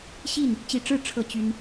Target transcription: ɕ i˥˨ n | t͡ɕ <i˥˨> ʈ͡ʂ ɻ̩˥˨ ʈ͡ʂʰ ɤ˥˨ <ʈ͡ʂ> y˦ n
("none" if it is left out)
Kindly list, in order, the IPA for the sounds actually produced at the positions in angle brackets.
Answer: i˥˨, t͡ɕ

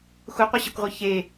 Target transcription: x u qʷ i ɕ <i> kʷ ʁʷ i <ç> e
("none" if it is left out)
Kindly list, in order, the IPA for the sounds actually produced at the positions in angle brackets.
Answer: e, ç

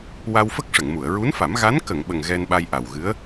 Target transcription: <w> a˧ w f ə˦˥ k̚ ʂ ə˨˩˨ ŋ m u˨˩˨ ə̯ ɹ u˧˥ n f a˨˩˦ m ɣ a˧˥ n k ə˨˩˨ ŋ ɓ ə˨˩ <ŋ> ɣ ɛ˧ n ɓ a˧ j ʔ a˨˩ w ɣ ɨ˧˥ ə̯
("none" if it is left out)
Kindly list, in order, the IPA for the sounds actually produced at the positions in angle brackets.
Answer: w, ŋ

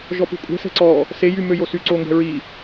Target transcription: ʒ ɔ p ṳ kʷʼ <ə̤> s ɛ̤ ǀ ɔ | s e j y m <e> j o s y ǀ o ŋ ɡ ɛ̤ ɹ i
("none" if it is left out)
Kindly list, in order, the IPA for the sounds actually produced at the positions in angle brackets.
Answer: ɛ̤, ø

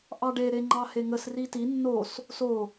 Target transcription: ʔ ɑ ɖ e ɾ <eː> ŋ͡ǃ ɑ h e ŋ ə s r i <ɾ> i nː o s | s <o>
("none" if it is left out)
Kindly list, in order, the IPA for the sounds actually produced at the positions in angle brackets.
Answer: e, t, o

